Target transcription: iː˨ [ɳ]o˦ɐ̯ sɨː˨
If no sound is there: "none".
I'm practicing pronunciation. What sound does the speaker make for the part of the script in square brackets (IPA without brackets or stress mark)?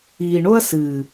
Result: ɳ